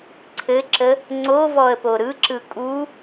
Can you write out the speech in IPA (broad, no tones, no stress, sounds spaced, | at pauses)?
ǀʰ ɘ ǁ ə | ŋ͡ǀ o v ɔ ə̯ p o ɾ ɯ ǁ ɯ kʼ u